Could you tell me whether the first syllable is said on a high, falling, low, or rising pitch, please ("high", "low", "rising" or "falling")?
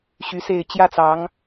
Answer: rising